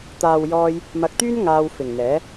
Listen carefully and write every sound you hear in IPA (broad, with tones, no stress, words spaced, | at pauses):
t̪aː˨wjɔː˧j | mɐ˧k̚t̪yː˥n ŋaː˧wfɪ˨˩ŋn̪ɛː˨˥